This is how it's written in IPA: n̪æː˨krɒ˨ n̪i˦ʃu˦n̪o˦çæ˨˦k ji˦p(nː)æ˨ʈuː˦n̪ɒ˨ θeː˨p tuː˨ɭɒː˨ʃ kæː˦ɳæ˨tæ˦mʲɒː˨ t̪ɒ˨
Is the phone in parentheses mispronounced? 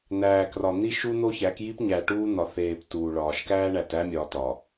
yes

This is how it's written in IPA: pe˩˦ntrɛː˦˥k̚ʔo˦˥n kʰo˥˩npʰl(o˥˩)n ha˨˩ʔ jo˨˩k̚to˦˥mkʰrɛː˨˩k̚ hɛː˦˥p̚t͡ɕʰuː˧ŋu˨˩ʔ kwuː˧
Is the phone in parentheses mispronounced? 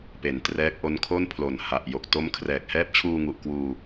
yes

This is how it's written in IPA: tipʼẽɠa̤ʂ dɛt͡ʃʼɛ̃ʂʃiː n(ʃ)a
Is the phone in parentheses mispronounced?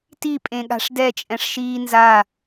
yes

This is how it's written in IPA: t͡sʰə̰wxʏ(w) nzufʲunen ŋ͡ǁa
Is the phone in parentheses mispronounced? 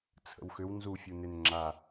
no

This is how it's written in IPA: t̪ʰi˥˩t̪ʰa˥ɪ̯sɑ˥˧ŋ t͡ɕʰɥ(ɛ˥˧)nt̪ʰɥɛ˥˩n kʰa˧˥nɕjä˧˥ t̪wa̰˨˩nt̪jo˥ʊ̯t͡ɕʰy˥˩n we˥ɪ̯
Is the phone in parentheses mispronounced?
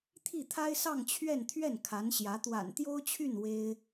no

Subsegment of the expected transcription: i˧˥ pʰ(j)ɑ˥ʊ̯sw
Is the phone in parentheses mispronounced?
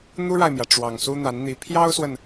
no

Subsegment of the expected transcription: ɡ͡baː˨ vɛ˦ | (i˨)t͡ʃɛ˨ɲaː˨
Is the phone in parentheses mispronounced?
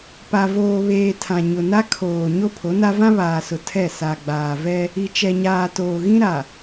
no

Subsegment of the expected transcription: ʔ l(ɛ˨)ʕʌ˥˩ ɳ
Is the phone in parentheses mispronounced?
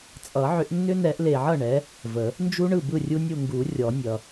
yes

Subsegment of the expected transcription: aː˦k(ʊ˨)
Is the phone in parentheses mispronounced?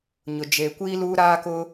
yes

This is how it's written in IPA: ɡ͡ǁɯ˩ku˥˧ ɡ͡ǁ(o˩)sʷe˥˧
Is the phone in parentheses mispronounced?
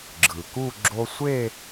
yes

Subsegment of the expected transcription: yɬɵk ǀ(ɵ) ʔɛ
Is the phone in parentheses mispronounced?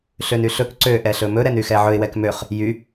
yes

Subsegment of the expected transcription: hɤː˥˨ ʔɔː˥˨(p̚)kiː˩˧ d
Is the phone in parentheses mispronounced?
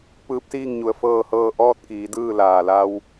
yes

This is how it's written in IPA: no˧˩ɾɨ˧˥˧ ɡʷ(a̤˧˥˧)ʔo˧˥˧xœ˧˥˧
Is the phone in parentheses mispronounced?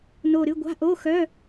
no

